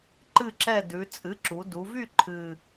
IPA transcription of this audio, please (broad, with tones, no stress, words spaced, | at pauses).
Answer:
ǃɨ˥˨ǁɛ˥˨ dʉ˩˧ t͡sʼɨ˩˥ǁu˩˧ du˩˧vy˥˨ ǃʰɨ˨˩